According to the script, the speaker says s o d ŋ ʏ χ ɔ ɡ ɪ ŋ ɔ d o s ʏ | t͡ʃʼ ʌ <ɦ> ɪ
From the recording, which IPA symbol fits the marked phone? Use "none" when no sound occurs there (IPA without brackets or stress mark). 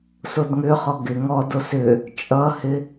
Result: h